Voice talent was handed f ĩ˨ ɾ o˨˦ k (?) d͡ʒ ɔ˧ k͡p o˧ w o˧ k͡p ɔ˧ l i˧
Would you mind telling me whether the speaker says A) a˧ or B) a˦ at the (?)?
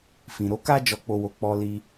B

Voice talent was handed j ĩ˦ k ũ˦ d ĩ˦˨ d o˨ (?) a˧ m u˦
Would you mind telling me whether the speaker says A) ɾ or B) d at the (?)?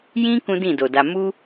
B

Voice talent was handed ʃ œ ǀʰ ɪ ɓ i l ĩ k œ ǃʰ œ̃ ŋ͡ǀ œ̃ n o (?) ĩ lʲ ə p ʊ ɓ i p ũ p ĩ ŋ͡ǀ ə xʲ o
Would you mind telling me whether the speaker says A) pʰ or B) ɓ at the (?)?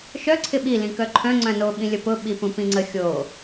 B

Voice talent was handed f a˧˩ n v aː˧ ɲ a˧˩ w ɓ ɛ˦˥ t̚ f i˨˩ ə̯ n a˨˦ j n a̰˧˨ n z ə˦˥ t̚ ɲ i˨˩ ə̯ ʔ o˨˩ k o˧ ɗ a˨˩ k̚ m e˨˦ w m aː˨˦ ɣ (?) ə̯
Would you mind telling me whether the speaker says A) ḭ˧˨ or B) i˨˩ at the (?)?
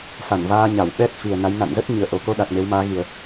B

